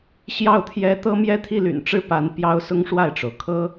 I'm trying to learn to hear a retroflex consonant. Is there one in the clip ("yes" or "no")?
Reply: yes